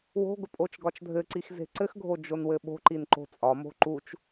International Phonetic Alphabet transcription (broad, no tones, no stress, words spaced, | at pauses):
wo̤ɡʊ pʼot͡ʃɡɒt͡ʃdʱɘǀix ze̤ǀɘxɡʱo d͡ʒonwɘɓo̤ǃin ǃo̤t͡sʼɒmo̤ ǃut͡ʃ